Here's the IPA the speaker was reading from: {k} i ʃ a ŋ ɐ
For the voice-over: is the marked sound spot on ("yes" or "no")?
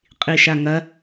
no